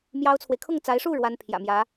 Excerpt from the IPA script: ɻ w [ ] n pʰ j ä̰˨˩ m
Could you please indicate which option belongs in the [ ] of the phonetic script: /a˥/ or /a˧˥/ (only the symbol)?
a˥